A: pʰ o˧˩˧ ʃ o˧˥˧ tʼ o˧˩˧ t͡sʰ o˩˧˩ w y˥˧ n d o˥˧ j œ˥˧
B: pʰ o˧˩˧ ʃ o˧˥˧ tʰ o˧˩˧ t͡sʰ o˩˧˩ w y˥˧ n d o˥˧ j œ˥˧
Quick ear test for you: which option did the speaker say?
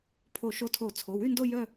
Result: B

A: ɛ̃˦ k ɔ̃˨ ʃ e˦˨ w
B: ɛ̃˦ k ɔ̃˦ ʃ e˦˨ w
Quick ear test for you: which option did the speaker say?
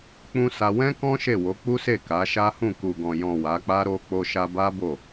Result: B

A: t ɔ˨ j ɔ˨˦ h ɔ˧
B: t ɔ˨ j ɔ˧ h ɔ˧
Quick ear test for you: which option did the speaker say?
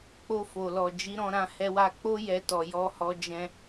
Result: B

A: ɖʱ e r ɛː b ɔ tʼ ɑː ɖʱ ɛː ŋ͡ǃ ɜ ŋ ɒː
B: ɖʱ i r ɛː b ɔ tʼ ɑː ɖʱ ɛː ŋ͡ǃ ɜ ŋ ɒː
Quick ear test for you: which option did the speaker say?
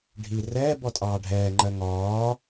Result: B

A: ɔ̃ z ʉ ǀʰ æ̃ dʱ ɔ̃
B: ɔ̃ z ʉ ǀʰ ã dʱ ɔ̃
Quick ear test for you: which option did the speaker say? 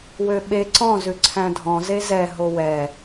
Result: A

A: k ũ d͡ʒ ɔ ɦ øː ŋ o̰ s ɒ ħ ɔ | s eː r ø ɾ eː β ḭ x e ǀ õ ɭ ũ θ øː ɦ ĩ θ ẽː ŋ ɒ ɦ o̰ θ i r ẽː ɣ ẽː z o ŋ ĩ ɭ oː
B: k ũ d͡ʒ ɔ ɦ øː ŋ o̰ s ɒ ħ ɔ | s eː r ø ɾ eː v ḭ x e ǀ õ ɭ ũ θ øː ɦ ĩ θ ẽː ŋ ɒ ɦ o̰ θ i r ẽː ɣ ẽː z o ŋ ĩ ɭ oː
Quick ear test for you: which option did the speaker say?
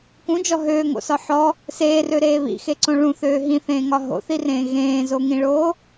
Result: A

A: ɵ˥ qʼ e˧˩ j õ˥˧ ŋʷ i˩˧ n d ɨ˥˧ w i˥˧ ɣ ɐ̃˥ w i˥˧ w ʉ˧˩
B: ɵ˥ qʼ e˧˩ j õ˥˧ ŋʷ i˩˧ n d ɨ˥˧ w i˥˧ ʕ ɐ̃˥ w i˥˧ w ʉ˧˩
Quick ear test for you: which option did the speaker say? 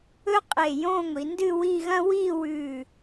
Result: A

